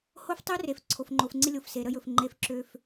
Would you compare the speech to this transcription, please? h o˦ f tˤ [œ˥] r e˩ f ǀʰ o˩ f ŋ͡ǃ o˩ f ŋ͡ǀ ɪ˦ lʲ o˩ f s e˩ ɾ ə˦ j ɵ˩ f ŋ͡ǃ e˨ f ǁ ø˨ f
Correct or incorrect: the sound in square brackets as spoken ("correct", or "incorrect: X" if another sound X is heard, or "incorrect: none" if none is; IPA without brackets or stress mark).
incorrect: ø˥